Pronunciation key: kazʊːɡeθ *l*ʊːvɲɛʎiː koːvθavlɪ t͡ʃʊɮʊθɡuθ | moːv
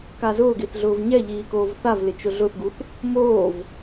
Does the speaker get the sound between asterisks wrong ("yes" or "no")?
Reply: yes